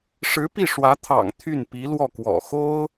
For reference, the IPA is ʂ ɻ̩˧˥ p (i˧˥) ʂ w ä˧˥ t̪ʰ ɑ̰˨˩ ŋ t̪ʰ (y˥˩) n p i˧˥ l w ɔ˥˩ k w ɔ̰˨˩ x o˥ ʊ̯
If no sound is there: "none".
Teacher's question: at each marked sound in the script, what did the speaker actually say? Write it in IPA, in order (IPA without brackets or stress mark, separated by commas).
i˥˩, y˥˩